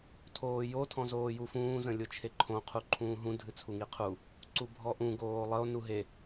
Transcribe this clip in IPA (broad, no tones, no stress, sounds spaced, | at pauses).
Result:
tʰ oː j o tʰ ɔ̃ z oː j u f ũː z ə̃ lʲ ʊ t͡ʃʰ e ǃʰ õ qʰ u ǃʰ ũː ɦ ũ dʱ ɨ t͡sʰ u ŋ i qʰ u | ǀ u bʱ ɔ ʔ ũ ɡ oː lˠ ə o̯ n u ɦ e